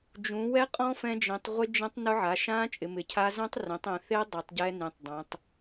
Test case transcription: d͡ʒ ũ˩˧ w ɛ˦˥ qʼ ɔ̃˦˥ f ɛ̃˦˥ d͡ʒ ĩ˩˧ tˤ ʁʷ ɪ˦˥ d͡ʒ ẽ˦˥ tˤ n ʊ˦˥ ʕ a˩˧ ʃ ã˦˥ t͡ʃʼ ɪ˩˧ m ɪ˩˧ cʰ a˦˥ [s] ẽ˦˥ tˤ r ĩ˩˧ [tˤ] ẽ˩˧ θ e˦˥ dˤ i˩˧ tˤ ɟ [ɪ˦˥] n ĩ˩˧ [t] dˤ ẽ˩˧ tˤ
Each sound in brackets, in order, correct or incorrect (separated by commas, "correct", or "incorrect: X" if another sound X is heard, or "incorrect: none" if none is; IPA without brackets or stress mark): incorrect: z, correct, incorrect: ɛ˦˥, incorrect: tˤ